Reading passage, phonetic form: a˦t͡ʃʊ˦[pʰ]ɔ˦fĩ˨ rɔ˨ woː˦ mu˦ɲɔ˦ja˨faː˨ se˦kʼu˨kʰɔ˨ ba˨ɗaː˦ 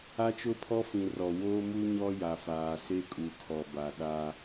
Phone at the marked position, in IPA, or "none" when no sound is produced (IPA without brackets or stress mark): pʰ